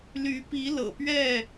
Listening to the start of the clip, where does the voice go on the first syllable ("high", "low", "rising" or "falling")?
rising